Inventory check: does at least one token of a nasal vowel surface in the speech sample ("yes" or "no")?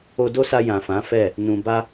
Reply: yes